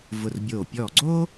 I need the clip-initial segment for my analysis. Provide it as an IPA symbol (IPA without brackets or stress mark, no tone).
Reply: v